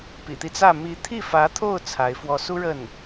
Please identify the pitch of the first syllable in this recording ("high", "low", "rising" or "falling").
low